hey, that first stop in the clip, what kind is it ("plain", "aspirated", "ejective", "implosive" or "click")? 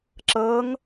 click